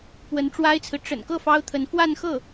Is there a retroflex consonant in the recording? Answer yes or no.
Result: yes